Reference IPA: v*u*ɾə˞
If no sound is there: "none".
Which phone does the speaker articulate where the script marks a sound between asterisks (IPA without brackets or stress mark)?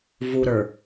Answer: u